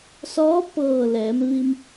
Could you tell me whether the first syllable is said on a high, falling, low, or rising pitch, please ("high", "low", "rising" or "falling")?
rising